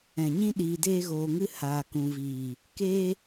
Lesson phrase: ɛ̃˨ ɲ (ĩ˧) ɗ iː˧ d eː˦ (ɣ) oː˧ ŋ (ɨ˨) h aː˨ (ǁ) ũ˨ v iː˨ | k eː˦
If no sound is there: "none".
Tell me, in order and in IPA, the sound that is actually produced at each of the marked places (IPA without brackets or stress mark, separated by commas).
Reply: ĩ˦, ɣ, ɨ˦, k